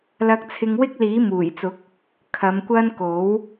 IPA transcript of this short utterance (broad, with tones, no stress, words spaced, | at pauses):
lɐ˧k̚t͡sʰɪ˧ŋwɪ˥k̚ liː˨˥muː˨˩jt͡sʊ˨˥k̚ | kʰɐ˨˧mkʷɐ˥n ko˨˥w